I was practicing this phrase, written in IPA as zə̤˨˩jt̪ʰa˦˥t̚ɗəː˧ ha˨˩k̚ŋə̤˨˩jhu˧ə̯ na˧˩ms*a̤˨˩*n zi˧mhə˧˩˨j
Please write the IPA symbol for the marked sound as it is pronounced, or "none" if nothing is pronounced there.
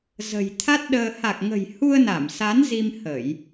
a˨˦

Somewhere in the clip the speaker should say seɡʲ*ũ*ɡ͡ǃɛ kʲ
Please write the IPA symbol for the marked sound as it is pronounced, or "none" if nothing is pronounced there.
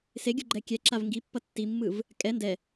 u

